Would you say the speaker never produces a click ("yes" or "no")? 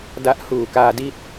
yes